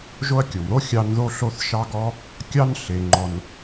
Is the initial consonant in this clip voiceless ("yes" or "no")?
no